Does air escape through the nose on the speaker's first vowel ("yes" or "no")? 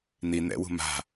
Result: no